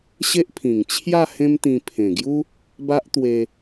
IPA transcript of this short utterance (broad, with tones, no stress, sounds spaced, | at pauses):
ɕ e˦ ʔ pʰ ĩ˨˩ ŋ t͡ɕʰ j a˥˧ h ẽ˦ m t̪ ĩ˧ pʰ ẽ˨˩ ɡ j u˦ | b a˦ ʔ t̪ w e˧